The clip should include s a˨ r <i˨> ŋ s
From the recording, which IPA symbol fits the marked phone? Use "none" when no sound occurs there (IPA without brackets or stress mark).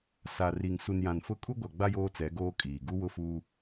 i˨